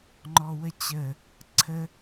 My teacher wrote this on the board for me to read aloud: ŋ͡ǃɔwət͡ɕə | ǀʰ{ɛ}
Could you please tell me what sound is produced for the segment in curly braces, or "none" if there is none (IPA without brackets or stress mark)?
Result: ə